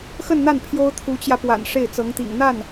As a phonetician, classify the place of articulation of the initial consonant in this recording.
velar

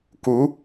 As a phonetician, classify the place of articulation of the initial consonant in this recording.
velar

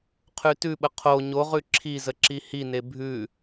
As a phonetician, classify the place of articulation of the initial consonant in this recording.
uvular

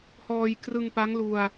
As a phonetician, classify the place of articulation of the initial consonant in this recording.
glottal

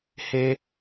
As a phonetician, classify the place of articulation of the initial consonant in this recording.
glottal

